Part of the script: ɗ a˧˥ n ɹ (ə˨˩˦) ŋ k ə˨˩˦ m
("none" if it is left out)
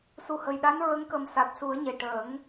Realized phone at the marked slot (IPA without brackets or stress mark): ə˧˥